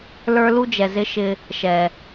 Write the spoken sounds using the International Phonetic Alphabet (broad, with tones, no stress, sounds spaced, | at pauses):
l ə˞˦ l u˦ d͡ʒ ɛ˨ z ɪ˦ ʃ ɪ˧ | ʃ ɛ˨